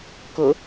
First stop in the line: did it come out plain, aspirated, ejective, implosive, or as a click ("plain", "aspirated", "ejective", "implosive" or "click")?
plain